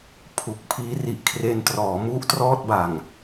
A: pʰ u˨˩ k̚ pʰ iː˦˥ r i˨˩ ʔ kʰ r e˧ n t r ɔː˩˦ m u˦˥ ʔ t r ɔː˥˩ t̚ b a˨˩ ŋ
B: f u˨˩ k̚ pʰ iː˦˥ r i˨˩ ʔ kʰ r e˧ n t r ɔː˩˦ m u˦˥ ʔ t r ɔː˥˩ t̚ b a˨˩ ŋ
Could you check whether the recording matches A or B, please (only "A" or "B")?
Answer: A